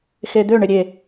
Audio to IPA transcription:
x e d̪ ø ɳ ɪ ɾʲ e

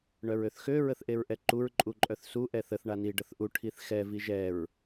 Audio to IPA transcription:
ɳ œ ɹ ø θ x ø ɹ ə θ ʔ e ɹ ʔ ɛ ǃ u ɹ ǃʼ u ǃʼ œ θ s u ʔ ɛ θ ə θ ɳ a n i ɖ ə θ ʔ u ʈʰ i θ x ɛ v i ʒ ɛ ɹ

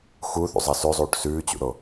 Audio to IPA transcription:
x u θ ṵ zˤ ɑ s ʉ zˤ uː ʈ s ʉː t͡ɕ ṵ ɾ o

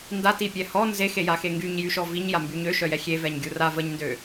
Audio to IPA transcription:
n d a t i pʲ ɛ h ɔ n z e x e j a x e ŋ ɡ y ɲ j y ʃ ɔ v i ɲ j a m b y ɲ ø ʃ œ j ɛ xʲ e v ɛ ɲ ɡʲ u r a v ə ɲ n d ø

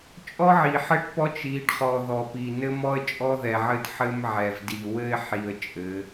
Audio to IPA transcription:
t͡ʃʼ ɔ˦ ʕ i˨ ħ ɘ˦ ʈ p ɔ˦ t͡ʃ i˨˦ ɖ χ ɔ˨ ð ɔ˨ p i˨ n ɘ˦ m ɔ˦ ə̯ t͡ʃʼ ɔ˦ ð ɛ˨ ʕ ɘ˦ d ħ ɘ˦ m ʕ ɛ˨ v d i˨ w ɘ˦ ɪ̯ ħ i˨ ə̯ t͡ʃʼ ɘ˨˦

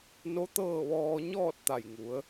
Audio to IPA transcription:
n o˧˥ t̪ ɤː˥˨ ʋ ɔː˧ ɲ ɔː˥˨ t̚ t̪ a˧˩ j ŋ u˩˧ ə̯

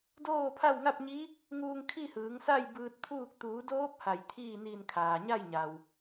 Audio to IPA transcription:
d oː˥˨ pʰ a˥˨ w ŋ a˥˨ p̚ ɲ i˧˥ | ŋ uː˧ ŋ kʰ i˥˨ h ɯː˩˧ ŋ s a˥˨ j b ɯː˧ t̚ pʰ uː˥˨ k̚ t̪ uː˩˧ d oː˧˥ p̚ h a˧˩ j t̪ʰ iː˥˨ n iː˧˩ n kʰ aː˩ ɲ a˥˨ j ɲ a˩ w

